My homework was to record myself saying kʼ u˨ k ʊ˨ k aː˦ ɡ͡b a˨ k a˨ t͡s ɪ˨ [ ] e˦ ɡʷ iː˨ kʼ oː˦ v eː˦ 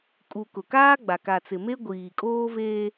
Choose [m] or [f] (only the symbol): m